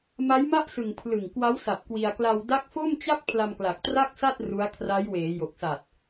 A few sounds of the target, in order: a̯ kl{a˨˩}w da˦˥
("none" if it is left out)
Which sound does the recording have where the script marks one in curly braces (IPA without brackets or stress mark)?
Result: a˧